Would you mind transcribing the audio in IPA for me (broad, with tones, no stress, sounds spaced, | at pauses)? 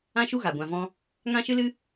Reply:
ã˦ ʃ u˦ ɣ a˨ ɡʷ ã˧ v ɔ̃˦ | ŋ ã˦ ʃ ɨ˦ l ɨ˦